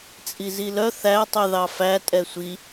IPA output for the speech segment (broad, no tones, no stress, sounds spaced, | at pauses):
t͡sʼ i z i l œ θ æ tˤ y ð ɑ f æ tʼ ɛ sʷ i